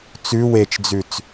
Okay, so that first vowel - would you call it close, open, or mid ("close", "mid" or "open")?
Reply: close